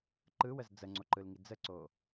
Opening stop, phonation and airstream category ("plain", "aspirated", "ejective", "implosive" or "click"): click